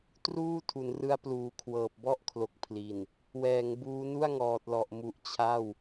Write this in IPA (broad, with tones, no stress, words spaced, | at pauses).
truː˥˩tʰu˩˦nrɯ˦˥a̯ pluː˨˩kʰwɤː˨˩p̚bɔ˥˩ʔkʰlo˨˩k̚ pʰli˨˩n | wɛː˩˦ŋbuː˦˥nu˥˩a̯ŋɔː˨˩t̚ lɔ˨˩ʔmu˨˩ʔ t͡ɕʰa˥˩w